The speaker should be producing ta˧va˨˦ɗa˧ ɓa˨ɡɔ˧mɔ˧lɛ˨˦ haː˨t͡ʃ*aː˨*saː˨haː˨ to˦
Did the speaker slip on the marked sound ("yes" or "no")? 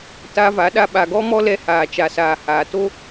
yes